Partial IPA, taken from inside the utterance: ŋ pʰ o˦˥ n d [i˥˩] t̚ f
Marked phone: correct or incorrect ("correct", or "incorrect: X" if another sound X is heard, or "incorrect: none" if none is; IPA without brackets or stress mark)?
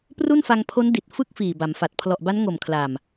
incorrect: i˨˩